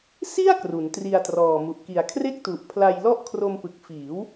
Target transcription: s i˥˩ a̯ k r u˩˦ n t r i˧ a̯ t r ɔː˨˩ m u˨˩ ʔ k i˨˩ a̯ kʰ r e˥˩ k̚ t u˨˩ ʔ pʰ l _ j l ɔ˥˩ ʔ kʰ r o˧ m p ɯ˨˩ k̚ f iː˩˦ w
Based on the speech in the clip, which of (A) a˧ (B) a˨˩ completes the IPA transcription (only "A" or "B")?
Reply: A